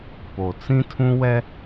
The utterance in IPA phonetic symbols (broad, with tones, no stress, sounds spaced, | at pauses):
p o˨ t͡s ĩ˦ tʰ ũ˦ w ɛ˦